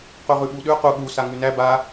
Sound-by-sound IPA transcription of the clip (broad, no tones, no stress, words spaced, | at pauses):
qʉʁʉɓuɗʉ qu ɠu saŋʉnæ ba